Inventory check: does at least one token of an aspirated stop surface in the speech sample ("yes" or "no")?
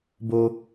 no